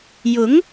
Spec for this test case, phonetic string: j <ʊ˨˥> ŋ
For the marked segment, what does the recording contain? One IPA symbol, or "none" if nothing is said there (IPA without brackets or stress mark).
ʊ˨˥